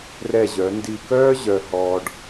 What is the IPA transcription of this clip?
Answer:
r ɛ˧˩ ʑ œ˩˧ n d i˧˩ k œː˥ ʑ œ˧ h ɔ˧ ɖ

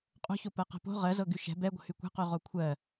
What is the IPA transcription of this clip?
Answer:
qʼ o̤ ç o p ɜ q ɛ̤ p o̤ ʁ ɜ z ɤ ɡ y ʃ ɛ̤ b ɛ ɡʷ ə̤ h y kʷ ɛ̤ q y ʁ o kʷʰ ɜ

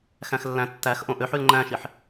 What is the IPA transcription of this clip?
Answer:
x æ̃ x lː æ̃ tː æ x ʔ õ ʔ ø ħ y l ŋ͡ǃ æ̃ ʃ i ħ

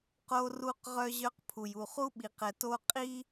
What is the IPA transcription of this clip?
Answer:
q o˦ r u˦ q ʁ œ˦ ʑ œ˦ q pʰ u˨ j u˨ χ u˦ ɓ i˨ q ɛ˨ t o˦ qʼ i˦

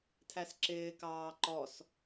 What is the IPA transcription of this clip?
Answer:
tʰ æ s ǁ ɪː k ɑː ǃ ɔ s

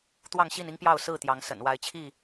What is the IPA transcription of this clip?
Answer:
t̪ w ɑ˥˨ ŋ ɕ i˥˨ n i˦ ŋ p j ɑ˥˨ ʊ̯ s ɹ̩˥˨ t̪ j ɑ˨˦ ŋ s ə̰˨˩ n w a˨˦ ɪ̯ t͡ɕʰ i˥˨

